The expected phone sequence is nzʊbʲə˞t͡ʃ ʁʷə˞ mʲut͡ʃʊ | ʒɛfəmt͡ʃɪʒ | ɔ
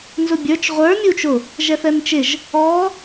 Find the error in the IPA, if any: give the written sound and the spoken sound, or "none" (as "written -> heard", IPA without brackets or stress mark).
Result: ə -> ɛ